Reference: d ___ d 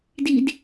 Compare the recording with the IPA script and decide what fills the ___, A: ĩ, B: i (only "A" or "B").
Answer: B